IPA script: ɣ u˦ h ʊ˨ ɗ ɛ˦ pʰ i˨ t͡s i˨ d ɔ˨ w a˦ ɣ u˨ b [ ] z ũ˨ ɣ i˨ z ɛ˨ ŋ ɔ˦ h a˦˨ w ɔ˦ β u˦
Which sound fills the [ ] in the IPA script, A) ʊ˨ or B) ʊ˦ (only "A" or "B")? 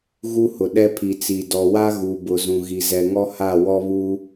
A